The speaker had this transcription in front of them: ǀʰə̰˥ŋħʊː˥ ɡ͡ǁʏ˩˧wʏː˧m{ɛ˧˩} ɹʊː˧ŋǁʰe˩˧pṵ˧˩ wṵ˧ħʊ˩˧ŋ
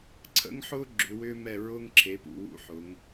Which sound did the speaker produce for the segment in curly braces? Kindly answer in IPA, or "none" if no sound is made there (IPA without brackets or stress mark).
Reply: ɛ˧˩